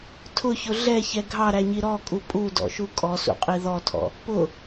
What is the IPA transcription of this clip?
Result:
tʰ ʊ ç ʊ ɮ ɛ ç ɛ ɡʱ ɑ ɾ æ ɲ i ɾ ɔ kʼ u pʼ u d ɔ̰ ʃ u kʼ ɔ s ṵ qʼ i ð ɔ tʰ ɔ̰ | p ʊ

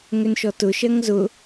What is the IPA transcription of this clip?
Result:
ŋ ʏ n ʃ ɔ t ʊ ʃ ɜ ŋ z ʊ

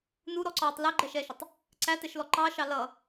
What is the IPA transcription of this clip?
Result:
n u ɾ ɔ ǀ ɒː tˤ l ɛ ɡ͡ǃ ɛ ʃ ɛː ʃ ʊ tˤ | ǀ æ t ɛ ʃ l ɔ ǃ ɑ ʃ ɑ l ʌ

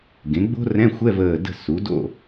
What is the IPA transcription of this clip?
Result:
ɡ ẽ˩˥ ɡ͡b o̤˥ r ɛ̃˧˥˧ xʷ ɛ˧˥˧ v əː˧˩ d ə̤˥˨ s u˩˥ d o̰˥˨

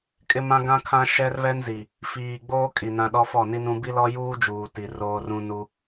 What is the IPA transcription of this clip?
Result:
kʼ ɪ˦ m ã˦ ɡ ã˦ kʰ ã˦ ʃ ɛ˦ r β ɛ˦ n z i˨ | f iː˨ ɡ͡b oː˦ kʼ i˨ n ã˦ ɗ ɔ˦ f ɔ˦˨ n i˦ n ũ˦ b i˦ l ɔ˦ j uː˦ d͡ʒ uː˨ t i˨ r oː˦ r ũ˦ n u˦

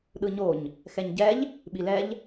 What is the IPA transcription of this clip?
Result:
ɗ ɯ ɲ o ɲ | x ɛ ɲ ɟ ɛ ʎ | ɓ i l ɛ ʎ

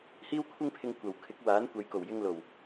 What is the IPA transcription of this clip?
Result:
h iː˥ w kʷʰ ɪ˥ ŋ pʰ ɪ˧ ŋ kʷ ɐ˨ w kʰ ɪ˨˥ k̚ w aː˨˥ n kʷ ɐ˨˥ j k o˨˩ w j ɪ˧ ŋ l o˨˩ w

